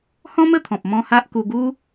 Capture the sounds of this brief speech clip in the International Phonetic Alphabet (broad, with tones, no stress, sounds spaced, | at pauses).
h ɔ̃˦ m ə˥˧ t̪ʰ ɔ̃˨ p̚ m ɔ̃˦ h a˦ ʔ k u˧ ɡ u˦